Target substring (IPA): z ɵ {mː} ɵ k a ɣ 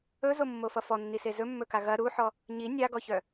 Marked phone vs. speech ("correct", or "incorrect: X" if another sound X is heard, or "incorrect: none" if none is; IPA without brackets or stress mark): correct